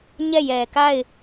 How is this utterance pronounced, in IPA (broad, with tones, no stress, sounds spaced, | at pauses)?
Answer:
ɲ ɛ˦˨ j ɛ˨ k a˦˨ ɪ̯